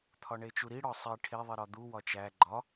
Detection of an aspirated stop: present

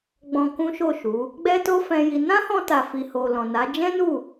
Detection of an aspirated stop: absent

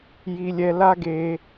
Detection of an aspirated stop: absent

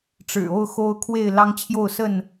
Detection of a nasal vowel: absent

